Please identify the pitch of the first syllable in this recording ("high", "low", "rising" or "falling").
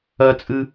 high